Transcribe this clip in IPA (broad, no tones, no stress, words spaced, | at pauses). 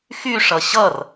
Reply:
xyʂʌ ɕʌr